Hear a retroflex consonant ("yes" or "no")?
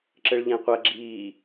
yes